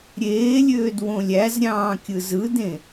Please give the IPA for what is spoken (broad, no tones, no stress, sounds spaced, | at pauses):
ɾʲ eː lʲ øː d w õ lʲ æ z ɾʲ ɑ̃ː kʲ ɯ z ɯ d ẽ